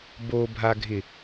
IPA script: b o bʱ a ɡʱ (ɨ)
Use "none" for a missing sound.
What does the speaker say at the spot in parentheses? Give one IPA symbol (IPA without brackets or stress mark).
ɪ